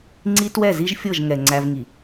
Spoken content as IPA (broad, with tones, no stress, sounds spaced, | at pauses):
ŋ͡ǀ i˦ t w ɛ˦˨ z i˦ ʒ fʲ ɤ˦˨ ʒ ŋ ɛ˨ ŋ͡ǀ æ˦ v ŋ i˨